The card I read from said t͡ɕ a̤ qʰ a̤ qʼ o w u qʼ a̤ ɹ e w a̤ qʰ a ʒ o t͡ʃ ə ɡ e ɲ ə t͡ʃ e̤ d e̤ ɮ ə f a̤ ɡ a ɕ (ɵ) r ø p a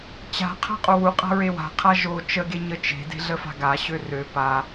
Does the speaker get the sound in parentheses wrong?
yes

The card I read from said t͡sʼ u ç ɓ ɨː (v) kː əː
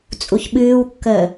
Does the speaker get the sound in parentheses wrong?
yes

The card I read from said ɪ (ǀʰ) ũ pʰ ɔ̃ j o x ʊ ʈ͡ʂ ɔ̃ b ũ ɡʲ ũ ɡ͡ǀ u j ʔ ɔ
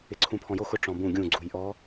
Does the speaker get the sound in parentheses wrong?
no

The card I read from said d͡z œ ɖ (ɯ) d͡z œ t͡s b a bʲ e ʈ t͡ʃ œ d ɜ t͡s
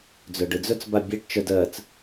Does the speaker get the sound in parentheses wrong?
no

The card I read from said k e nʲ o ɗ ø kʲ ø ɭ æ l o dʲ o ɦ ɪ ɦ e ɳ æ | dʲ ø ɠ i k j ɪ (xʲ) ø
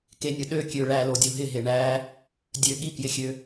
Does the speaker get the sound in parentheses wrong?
no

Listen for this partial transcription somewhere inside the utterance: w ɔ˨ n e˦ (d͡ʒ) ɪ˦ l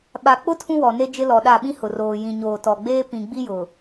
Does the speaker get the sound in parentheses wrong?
no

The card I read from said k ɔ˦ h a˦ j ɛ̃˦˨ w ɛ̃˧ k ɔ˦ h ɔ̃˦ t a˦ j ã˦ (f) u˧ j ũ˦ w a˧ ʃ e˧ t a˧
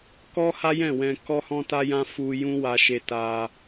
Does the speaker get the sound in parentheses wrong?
no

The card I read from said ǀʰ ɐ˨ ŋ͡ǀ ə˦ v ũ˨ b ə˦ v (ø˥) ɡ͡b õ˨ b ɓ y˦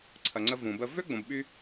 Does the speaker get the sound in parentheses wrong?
no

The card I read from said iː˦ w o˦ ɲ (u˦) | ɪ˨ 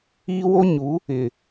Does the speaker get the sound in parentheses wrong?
yes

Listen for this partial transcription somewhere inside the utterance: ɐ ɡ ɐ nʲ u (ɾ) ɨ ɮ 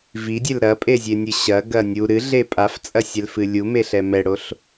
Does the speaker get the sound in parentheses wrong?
no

